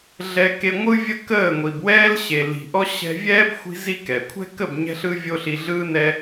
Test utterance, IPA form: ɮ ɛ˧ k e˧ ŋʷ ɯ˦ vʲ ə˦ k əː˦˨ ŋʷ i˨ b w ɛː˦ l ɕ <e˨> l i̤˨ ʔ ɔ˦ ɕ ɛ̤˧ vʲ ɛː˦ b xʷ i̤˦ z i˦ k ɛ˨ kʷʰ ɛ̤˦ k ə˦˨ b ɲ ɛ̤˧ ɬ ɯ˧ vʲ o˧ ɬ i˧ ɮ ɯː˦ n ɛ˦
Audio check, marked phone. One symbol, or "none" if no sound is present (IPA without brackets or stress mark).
e˨